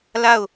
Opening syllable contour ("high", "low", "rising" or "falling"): falling